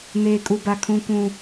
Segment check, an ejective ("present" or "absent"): present